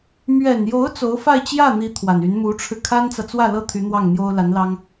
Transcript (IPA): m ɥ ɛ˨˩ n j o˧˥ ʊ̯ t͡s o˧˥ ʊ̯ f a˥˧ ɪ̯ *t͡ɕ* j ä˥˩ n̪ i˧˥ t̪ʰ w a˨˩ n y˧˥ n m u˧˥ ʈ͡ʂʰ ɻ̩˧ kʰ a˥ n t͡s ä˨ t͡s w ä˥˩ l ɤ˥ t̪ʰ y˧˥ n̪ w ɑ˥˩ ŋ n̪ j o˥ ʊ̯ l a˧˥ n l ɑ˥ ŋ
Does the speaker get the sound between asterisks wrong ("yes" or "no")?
no